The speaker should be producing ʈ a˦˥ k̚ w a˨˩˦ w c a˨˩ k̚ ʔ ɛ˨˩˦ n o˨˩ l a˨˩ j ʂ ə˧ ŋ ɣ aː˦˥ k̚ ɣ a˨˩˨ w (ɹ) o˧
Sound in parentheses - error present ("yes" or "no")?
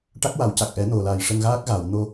yes